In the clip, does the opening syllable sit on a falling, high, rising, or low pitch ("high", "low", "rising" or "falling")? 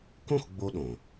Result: falling